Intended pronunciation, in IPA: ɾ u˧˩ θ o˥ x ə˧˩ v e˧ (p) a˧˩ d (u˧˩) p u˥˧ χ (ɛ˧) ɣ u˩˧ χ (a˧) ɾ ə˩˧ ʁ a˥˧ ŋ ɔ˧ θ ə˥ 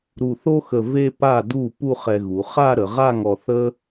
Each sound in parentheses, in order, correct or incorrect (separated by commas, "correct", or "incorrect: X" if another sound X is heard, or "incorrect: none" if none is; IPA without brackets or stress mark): correct, correct, correct, incorrect: a˥˧